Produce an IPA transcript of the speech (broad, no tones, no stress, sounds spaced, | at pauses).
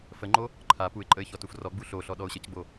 f ə ŋ͡ǃ o | ǃʰ a p u ɪ̯ ǃʼ ə ɪ̯ ç ɔ t u f r ɔ ɡ͡b u ɬ o ɬ ɔ ɗ ɔ ʊ̯ ɕ ə c ɡ͡b o